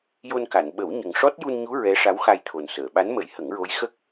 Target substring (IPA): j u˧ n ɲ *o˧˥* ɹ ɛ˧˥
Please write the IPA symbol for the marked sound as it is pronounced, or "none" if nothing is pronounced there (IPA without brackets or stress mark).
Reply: u˧˥